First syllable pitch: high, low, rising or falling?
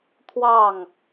falling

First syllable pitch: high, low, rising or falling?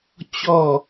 falling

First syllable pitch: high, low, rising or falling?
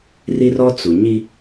high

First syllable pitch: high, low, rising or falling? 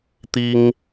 high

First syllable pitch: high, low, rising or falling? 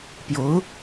rising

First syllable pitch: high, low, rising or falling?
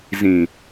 low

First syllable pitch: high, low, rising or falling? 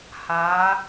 rising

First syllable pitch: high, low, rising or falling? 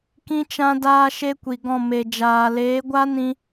high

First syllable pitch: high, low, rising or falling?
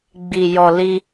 low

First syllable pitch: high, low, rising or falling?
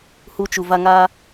high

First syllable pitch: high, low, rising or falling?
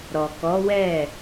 low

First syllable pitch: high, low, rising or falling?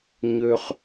low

